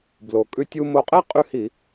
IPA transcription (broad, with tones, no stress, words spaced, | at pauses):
blo˩ kʼʉ˧tʲu˧ mo˧qʼɛ˥ qʼʉ˥˧hi˧˩˧